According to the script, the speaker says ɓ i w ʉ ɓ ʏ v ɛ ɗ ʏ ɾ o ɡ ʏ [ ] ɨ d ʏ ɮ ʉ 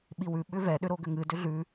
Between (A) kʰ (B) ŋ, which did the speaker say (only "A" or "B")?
B